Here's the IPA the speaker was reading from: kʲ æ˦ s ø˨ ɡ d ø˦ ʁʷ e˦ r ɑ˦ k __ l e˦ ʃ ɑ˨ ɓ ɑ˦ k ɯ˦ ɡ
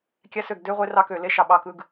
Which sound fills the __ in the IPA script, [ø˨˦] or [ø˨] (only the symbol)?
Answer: ø˨